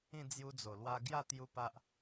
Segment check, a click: absent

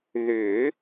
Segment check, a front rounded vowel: present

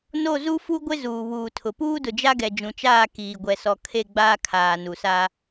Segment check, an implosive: absent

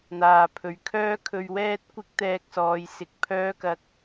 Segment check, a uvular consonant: absent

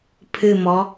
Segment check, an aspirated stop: present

